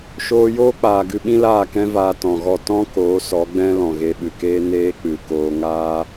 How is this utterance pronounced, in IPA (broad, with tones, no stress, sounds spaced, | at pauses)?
ʃ oː˧ j oː˦ k͡p aː˨ ɡ ɨ˧ ɓ ĩ˦ l aː˦˨ k ɛ̃˦ v aː˧ t ɔ̃˨ ɣ ɔ˦˨ t ɔ̃˦ k oː˨˦ s ɔ˨˦ ɡ͡b ɛ̃˦ l ɔ̃˨ ɣ e˧ ɓ ɨ˨ k eː˦ n eː˦ k͡p ɨ˨ k oː˧ ŋ aː˦